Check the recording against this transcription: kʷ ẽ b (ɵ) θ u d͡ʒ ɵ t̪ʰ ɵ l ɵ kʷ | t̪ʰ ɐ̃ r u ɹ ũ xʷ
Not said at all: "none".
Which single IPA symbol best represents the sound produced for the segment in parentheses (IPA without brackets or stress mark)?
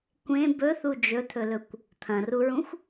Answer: ɵ